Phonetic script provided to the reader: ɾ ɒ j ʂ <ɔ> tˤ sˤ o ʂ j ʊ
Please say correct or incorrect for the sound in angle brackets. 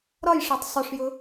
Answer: correct